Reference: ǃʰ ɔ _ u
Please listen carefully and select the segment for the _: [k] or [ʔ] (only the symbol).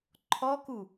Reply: k